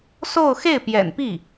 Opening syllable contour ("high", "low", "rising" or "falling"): falling